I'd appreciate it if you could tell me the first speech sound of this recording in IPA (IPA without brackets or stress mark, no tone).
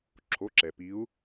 ǁʰ